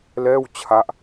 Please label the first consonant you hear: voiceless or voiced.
voiced